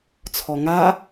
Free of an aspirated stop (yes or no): no